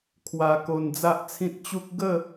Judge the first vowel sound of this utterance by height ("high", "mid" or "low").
low